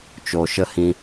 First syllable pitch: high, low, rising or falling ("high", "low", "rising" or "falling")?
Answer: low